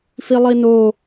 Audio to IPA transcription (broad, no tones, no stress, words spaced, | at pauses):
filˠino